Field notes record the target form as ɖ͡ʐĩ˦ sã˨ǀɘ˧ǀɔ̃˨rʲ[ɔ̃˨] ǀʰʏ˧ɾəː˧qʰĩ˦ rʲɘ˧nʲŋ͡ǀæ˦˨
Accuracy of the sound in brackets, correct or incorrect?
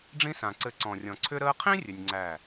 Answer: correct